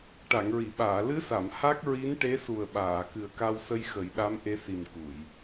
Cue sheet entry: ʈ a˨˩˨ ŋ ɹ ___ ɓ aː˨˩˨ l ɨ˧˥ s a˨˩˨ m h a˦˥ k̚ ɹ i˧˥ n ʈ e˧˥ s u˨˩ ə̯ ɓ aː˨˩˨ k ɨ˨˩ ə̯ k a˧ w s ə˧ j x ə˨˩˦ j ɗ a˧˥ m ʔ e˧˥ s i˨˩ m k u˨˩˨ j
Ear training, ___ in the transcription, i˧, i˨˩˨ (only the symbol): i˨˩˨